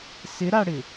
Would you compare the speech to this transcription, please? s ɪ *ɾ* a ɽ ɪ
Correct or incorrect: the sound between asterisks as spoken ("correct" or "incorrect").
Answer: correct